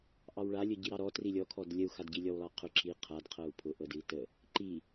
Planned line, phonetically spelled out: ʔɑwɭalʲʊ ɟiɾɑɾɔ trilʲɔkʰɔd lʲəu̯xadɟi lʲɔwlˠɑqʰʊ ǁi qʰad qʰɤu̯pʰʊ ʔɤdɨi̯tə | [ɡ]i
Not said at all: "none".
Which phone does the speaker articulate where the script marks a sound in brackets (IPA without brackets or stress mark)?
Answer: ǃ